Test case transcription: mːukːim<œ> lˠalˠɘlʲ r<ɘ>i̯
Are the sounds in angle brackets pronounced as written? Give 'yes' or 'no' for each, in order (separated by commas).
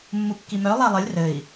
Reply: yes, yes